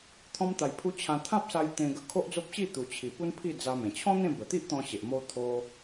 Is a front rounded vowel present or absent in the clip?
absent